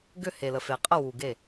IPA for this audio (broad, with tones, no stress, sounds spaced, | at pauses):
ɡ ʏ˦˨ h e˨ l ə˨ f e˨ qʼ ə˦˨ w u˨ ɡ e˦˨